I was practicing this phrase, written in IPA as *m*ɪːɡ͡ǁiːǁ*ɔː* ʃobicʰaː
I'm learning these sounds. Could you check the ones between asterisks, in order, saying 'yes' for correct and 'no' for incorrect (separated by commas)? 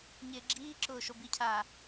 no, no